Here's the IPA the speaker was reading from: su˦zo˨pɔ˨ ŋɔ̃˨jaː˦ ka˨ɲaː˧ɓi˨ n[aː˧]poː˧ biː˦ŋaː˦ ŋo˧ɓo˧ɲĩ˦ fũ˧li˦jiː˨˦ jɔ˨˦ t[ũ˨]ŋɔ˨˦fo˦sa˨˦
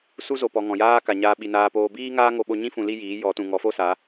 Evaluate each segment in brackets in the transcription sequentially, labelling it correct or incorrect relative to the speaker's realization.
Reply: correct, correct

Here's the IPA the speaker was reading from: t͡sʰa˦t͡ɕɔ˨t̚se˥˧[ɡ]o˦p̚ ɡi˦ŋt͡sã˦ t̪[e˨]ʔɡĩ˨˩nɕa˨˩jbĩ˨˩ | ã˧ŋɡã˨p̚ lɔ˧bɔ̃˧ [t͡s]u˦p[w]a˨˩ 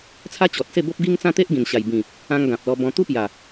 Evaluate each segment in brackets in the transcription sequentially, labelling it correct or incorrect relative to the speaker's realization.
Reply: incorrect: b, incorrect: e˦, incorrect: t̪, incorrect: j

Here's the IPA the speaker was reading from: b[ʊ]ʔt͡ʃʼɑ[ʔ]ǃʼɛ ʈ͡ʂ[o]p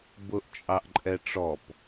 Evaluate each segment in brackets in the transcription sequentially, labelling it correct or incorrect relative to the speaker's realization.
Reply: correct, correct, incorrect: ɔ

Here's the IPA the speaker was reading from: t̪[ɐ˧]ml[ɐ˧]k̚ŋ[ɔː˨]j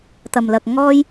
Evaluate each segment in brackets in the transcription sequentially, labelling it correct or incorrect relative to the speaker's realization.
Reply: correct, correct, incorrect: ɔː˥

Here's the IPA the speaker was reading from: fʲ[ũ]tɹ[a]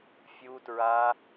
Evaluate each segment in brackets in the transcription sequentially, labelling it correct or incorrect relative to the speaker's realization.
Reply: incorrect: u, correct

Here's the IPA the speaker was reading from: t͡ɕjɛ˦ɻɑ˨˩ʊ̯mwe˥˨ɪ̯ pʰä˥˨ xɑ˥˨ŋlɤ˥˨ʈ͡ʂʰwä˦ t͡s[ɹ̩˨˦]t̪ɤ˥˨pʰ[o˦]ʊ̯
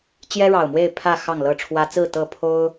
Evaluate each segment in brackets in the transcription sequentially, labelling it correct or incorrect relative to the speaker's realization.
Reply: incorrect: ɹ̩˥˨, correct

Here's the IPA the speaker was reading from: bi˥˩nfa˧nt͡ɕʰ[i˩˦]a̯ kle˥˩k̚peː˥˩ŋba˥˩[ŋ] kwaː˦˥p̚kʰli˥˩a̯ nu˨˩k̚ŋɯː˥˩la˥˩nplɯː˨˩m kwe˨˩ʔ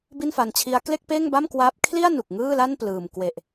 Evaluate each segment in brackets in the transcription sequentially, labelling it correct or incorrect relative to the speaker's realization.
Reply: incorrect: i˦˥, incorrect: m

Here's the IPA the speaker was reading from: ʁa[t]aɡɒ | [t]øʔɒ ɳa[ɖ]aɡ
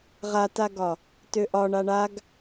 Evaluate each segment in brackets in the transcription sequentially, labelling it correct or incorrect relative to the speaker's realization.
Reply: correct, correct, incorrect: ɳ

